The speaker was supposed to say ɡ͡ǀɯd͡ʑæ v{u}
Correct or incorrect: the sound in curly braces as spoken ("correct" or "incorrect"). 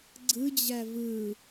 incorrect